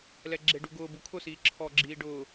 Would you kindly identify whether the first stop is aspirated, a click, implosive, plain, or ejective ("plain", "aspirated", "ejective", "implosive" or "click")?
click